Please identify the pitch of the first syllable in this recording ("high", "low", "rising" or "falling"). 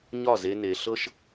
falling